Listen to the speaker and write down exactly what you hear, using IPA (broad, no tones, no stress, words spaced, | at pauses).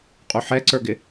qʼuħɛǀə˞ɡɪ